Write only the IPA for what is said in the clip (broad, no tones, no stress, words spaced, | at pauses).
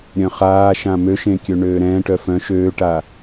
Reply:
ɾʲœ̃χaːʃã mø ʃẽkʲøɳøːɾɛ̃ː ʈœfœ̃ ʃøːʈa